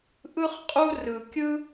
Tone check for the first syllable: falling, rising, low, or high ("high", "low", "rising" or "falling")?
high